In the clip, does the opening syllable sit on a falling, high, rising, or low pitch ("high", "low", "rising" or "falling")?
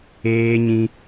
high